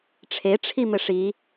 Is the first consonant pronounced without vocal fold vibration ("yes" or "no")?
yes